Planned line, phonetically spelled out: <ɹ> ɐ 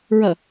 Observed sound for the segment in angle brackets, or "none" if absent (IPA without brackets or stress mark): ɹ